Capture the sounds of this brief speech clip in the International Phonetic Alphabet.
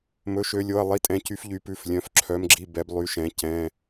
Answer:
mɵ˩˧ʃø˩˧lʲo˩˧˩ɐ̯ lˠi˩˧˩tʼɛ̃˩˧cy˩˧f ʎy˩˧pʉ˩˧˩flʲœ̃˩˧˩f ǁʰœ˩˧mɡ͡ǁi˩˧˩ bɛ˩˧b lˠy˩˧ʃɛ̃˩˧ cɛ̃˩˧˩

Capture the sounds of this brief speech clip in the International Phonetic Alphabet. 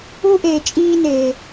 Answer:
u˦ʔeː˨t͡ʃʼiː˦neː˨

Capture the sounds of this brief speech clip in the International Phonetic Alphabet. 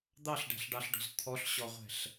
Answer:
d̪ɑɬɖæ̤ɬɖɑɬɖɔ̤z t̪ʰɔɬɕɔʁʷɛ̤ɬ

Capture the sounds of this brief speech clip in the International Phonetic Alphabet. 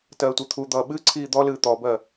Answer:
tɜːtʷɨt̪ʰud̪ʌː ɓɨ ǀʰiːd̪ɔlɨː t̪ɔbɜ

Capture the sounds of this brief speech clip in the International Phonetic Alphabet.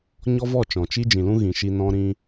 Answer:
ɲɔ˦vɔ˦˨t͡ʃɔ̃˨t͡ʃi˦ d͡ʒĩ˨lũ˦ ɣĩ˨ʃi˧ nɔ̃˦ɾĩ˦

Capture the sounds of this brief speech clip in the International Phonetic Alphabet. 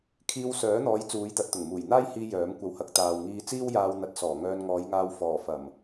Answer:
kʰiː˧wsœː˨˥n̪ɔː˨˧j t͡suː˨˧jt̪ɐ˨˥t̚t̪ʊ˨˩ŋ muː˨˩jn̪aː˥jhiː˧ jœː˨˥mkʷɐ˧whɐ˧k̚ t̪aː˨wŋiː˧t͡siː˥wjaː˧w n̪ɐ˨˥t̚sɔː˨˩ ŋœː˧nŋɔː˨˧jŋaː˧w fɔː˨˩fɐ˨˩m

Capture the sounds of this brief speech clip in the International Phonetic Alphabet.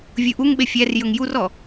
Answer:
vʲuʔuŋɓe fʲær jɵŋjurɔ

